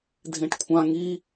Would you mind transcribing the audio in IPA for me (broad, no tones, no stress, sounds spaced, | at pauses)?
dʱ ẽ ʈ kʷʰ ã ŋ i